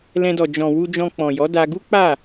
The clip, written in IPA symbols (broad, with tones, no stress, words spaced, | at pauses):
lɛ̃˧dɔ˨ d͡ʒɔ̃˨wu˧ d͡ʒɔ̃˧k͡pɔ̃˨jɔ˨˦da˧ ɡu˦k͡pa˦˨